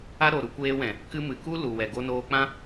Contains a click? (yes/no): no